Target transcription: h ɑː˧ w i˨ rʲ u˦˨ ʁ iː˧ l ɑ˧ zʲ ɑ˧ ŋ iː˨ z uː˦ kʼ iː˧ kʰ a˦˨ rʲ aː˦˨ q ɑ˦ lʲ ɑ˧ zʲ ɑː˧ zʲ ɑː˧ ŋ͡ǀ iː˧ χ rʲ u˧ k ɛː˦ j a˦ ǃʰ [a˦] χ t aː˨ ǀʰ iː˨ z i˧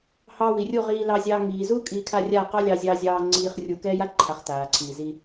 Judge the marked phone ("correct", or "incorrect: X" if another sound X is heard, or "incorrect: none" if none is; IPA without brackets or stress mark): incorrect: a˨˦